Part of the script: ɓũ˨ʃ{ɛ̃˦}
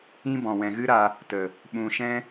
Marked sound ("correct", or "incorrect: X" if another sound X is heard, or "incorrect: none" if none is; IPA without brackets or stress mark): correct